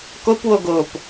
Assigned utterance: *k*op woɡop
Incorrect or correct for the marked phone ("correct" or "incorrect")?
correct